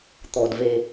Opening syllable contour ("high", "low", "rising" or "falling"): low